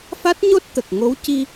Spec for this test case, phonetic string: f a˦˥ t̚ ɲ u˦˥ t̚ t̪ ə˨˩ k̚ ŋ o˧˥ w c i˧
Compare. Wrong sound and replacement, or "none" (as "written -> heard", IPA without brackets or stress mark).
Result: u˦˥ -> o˦˥